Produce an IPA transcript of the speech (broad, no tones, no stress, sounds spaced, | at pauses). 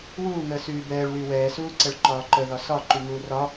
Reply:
w uː ŋ əː s yː b ɛː ɭ w y w ɛː s uː ǀ ə ɭ ǃ ɒː ǃ ə ð ɒ s ɒ ǃ y ŋ uː r ɒ